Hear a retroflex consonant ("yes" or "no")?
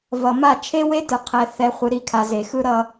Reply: no